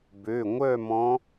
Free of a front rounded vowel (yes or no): no